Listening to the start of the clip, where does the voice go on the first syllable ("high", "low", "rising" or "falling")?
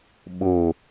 low